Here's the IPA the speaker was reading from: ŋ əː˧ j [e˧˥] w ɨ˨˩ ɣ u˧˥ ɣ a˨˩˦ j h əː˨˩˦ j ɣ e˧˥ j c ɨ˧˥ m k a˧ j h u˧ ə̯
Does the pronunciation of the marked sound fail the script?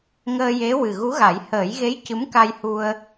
no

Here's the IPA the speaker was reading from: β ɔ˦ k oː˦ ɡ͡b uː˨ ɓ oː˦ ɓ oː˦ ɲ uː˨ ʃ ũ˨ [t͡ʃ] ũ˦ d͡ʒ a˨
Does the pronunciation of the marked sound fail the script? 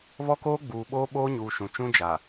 no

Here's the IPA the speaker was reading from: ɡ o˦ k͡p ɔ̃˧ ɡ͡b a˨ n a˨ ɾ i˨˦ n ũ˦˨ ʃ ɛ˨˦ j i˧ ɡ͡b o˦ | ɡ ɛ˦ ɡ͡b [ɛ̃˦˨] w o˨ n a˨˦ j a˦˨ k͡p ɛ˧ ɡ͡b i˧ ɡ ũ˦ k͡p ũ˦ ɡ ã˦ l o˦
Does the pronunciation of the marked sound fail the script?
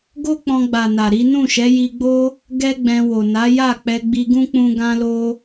yes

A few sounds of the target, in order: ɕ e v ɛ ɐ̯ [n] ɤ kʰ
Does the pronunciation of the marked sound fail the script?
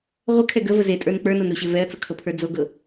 yes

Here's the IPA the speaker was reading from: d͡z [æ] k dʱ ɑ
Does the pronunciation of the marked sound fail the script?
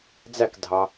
no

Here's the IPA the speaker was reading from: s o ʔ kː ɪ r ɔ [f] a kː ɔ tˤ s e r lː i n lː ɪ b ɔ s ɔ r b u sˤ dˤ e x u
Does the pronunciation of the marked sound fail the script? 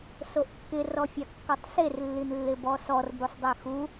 yes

